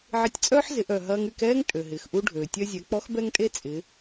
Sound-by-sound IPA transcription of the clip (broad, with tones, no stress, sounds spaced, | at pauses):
ʕ ɪ˧ tʲ t͡sʼ œː˥ ħ z ɪ˩˧ ʔ œ˩ ɦ ɐː˧ ŋ y˧ k ɛː˥ ŋ tʼ ø˩ ɦ ɪː˩ x ʔ u˧ ɖʱ øː˩ tʲ œ˧ zʲ ɛ˩˧ k͡p ɔ˧˥ x b ɛ˥ ŋ tʼ e˥ t͡sʼ ɪ˩˧